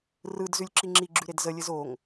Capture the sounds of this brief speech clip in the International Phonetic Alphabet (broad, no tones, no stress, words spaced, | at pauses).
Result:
rɯd zʉlʲǁiŋ͡ǁiɡ͡ǁʉ ɾedzəlʲɘz oŋ